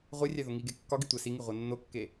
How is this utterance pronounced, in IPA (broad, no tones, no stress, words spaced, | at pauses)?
ʁʷerʲæ ðoŋiɡe kːɒɡi tʷæsiŋi ʁʷænːokːe